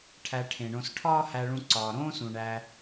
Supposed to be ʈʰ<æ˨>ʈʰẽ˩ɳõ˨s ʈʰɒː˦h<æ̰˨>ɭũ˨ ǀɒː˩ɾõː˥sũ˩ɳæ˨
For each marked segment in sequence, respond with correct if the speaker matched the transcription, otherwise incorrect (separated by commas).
correct, incorrect